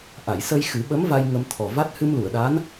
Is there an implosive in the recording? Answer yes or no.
yes